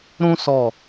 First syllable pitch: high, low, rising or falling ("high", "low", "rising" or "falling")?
high